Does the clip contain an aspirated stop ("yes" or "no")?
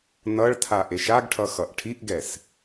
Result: yes